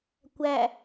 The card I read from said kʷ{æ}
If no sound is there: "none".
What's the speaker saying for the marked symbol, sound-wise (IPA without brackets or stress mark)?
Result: æ